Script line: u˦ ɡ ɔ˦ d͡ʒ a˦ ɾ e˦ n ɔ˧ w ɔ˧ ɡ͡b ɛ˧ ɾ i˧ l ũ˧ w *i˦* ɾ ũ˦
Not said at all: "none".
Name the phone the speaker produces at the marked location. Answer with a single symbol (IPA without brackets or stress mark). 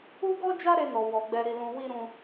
i˦